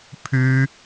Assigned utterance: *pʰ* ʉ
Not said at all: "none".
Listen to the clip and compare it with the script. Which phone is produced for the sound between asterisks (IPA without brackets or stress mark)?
pʰ